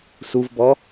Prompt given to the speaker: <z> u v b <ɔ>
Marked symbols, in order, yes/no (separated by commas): no, yes